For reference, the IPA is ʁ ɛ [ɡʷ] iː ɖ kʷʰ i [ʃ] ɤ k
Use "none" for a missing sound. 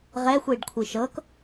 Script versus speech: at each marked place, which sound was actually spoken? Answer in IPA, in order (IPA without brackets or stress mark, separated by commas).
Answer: xʷ, ʃ